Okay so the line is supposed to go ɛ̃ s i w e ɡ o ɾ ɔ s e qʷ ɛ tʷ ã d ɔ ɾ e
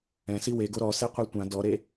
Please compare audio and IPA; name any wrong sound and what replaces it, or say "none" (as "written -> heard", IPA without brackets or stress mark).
none